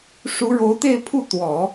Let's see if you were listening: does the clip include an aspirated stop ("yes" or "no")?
yes